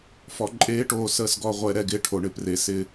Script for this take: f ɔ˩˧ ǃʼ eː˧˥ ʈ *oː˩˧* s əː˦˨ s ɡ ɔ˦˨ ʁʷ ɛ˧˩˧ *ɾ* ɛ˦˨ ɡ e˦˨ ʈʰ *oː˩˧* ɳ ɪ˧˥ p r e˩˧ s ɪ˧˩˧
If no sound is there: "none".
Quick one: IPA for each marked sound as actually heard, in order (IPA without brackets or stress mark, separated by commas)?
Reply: oː˩˧, ɾ, o˩˧